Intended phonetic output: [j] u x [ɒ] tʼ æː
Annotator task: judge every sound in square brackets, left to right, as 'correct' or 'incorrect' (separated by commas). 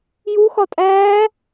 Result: correct, correct